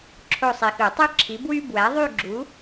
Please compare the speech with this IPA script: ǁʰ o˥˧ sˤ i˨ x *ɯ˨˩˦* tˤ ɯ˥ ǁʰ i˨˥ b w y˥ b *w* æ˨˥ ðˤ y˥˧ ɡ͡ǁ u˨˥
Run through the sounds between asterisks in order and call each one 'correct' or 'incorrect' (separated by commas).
correct, correct